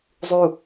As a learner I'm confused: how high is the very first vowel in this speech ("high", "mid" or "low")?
high